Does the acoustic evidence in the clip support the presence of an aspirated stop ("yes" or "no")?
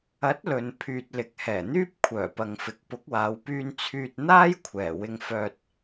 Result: yes